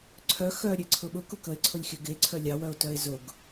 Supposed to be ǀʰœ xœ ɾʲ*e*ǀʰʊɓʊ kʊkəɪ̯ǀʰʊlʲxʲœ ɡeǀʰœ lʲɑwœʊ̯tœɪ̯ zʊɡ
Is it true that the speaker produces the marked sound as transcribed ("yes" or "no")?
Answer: yes